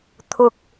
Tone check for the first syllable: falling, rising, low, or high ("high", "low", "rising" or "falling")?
low